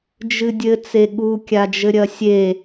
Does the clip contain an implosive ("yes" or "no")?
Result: yes